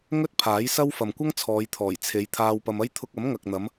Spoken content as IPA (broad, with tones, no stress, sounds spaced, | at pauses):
ŋ ɵ˥ t̚ pʰ aː˨˥ j s ɐ˥ w f ɐ˨ m kʷ ɐ˥ ŋ t͡sʰ ɔː˨˧ j t̪ʰ ɔː˨˩ j t͡sʰ e˨˧ j t̪ʰ aː˧ w p ɐ˧ m ɐ˥ j t̪ʰ ʊ˧ k̚ ɐ˨˥ m ŋ ɐ˨ k̚ n̪ ɐ˨˧ m